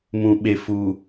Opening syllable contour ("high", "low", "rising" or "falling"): low